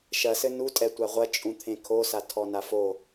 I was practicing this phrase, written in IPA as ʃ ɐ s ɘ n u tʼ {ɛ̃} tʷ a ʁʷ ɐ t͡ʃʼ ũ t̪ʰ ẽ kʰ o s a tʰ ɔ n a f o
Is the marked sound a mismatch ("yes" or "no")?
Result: yes